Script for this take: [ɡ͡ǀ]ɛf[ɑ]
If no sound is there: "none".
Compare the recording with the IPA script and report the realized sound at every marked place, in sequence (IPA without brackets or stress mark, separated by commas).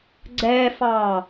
ɡ͡ǀ, ɑ